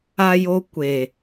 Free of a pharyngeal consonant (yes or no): yes